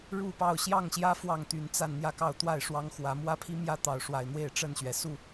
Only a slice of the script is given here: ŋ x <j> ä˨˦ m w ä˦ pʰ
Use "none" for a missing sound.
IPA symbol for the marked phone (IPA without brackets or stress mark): w